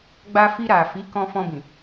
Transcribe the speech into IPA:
ɡ͡b a˧ f i˧ ɾ a˨ f i˨˦ k ɔ̃˧ f ɔ̃˧ b ĩ˨

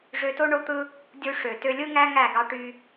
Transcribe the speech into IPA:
ʐ ø˧ t o˦ ɳ o˦ t̪ ɯ˦ | dʲ u˧ ʂ ø˨ t ø˧ lʲ ɯ˦ ŋ æ˦ ŋ æ˦˨ ɡ ɑ˦ ʈ y˦

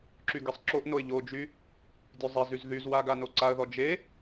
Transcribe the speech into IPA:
ǁ y ɡ e sˤ ǁ o ʔ n o ɪ̯ ʎ o d͡ʒ y | dʲ ø zˤ e z y z ð y z w a ɡ a n o ǀ a ə̯ ð ɔ d͡ʒ e

